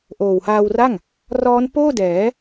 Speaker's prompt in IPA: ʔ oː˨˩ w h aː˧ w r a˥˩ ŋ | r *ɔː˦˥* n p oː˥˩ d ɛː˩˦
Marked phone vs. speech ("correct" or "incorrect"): correct